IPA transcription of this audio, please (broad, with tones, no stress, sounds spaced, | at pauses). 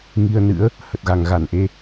ŋ i˧ ə̯ n ɨ̰˧˥ ə̯ | h ə˨˩ t̚ ɣ a˨˩ ŋ ɣ a˧˩ n ʔ e˧